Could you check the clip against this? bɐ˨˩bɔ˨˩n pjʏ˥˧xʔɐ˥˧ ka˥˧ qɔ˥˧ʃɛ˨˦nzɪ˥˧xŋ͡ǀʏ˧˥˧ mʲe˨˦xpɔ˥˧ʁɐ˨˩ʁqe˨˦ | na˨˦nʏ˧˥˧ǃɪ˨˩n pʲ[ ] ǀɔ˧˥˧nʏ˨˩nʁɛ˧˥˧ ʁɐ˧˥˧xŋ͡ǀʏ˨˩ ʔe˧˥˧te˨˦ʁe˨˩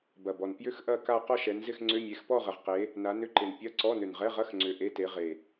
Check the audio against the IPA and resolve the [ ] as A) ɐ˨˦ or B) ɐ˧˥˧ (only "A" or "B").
B